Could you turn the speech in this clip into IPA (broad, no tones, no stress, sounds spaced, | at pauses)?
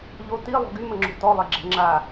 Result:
ʎ o t i lˠ o̤ ɡ y m ə ŋ͡ǁ o̤ t ɔ lˠ e ɡ͡ǁ ɛ̤ ŋ͡ǁ a